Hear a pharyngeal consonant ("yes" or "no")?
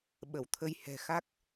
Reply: no